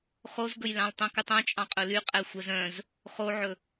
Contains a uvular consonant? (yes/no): yes